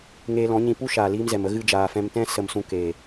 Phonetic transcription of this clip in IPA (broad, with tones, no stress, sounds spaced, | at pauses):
ŋ eː˧ l ɔ̃˨˦ ɲ ĩ˧ p u˦ ʃ aː˨ l iː˧ m z ɛ˨ m ə˧ ɣ ɨ˧ d͡ʒ aː˨ f ɛ̃˧ m t ɛ̃˦ s ə˧ m s ũ˧ k eː˨